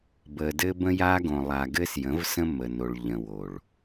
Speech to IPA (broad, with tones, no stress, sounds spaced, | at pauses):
b ə˨ d ɘ˦ b ə̃˦ j a˦ ɡ õ˨ lˠ a˨ ɡ ɘ˦ s j ə̃˨˦ v s ə̃˦ m ə˨ n o˨ ɭ ʎ ə̃˨ w o˨ ɭ